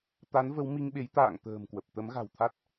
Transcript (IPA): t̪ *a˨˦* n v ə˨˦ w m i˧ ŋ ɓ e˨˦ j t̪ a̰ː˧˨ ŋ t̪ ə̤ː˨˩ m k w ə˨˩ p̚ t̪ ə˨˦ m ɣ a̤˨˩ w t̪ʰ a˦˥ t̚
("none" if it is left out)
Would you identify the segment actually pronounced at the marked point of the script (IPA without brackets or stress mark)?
a˨˦